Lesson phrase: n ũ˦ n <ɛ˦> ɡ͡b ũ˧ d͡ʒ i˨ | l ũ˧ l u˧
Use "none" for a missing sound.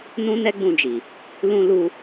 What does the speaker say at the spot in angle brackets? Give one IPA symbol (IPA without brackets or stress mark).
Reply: ɛ˦